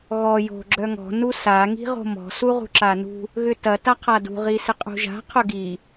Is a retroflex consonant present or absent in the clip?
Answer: absent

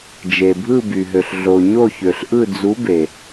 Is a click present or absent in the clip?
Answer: absent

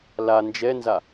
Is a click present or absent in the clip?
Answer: absent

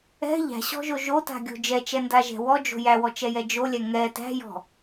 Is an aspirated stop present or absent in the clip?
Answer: absent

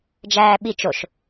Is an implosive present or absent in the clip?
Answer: present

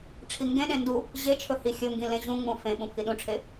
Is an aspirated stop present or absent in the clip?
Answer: present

